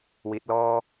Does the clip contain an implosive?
no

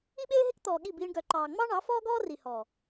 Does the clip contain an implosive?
yes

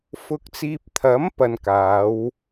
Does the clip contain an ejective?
no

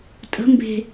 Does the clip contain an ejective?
yes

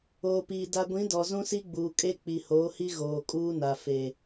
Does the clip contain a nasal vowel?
yes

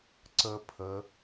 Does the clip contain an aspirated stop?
yes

